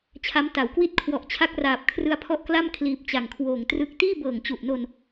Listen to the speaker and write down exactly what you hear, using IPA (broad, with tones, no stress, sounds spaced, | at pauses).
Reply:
t͡ɕʰ a˦˥ m t a˩˦ w k w i˥˩ t̚ kʰ w ɔ˨˩ ʔ t͡ɕʰ a˦˥ k̚ r aː˨˩ p̚ kʰ r ɯ˧ a̯ pʰ ɔ˦˥ ʔ k l a˥˩ m kʰ l iː˨˩ p̚ t͡ɕ a˨˩ ŋ kʰ w oː˨˩ ŋ t r ɯ˦˥ k̚ t iː˥˩ b ɤː˨˩ ŋ t͡ɕ u˨˩ ʔ n o˧ n